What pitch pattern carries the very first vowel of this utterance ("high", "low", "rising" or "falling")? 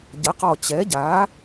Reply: rising